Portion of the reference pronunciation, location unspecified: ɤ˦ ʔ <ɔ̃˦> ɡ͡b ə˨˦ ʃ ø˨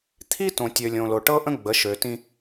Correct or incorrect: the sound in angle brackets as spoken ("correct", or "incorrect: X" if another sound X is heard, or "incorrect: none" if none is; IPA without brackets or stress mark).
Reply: incorrect: ə̃˦